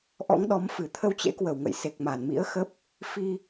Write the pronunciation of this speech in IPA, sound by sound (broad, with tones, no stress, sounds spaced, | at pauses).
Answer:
ʔ ɔ̰˧˥ ŋ ɗ ɔ˨˦ m f ɨ˧˩ t̪ʰ ə˧ w t͡ɕ ḛ˧˥ k w ə˧˩ w ŋ ə̰˧˨ j s e˨˩ k̚ m a˧˩ n m ḭ˧˥ ə̯ x ə˦˥ p̚ | f i˧